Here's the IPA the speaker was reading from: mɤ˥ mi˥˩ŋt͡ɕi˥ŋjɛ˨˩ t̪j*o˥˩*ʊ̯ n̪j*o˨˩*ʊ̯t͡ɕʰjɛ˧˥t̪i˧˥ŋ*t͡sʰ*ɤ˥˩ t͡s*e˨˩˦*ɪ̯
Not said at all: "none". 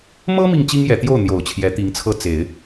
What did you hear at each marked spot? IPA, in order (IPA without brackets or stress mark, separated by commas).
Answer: o˥˩, o˨˩, t͡sʰ, e˨˩˦